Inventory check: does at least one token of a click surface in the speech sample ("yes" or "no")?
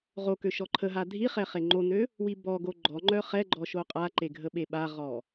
yes